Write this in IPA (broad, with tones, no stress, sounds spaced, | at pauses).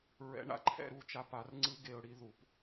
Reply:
ɹ ɛ̰˨˦ ɳ a̰˨˦ ǃʰ ɛ̰˦˨ ɾ u˦˨ t͡ʃ a˧ p a˨˦ r ŋ͡ǀ ɯ˧ ɡ e˧ ʊ̯ ɽ i˦ ð u˨˦ p